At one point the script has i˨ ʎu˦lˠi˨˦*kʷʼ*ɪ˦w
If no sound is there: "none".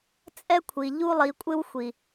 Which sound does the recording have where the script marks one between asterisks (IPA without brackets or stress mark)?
kʷʼ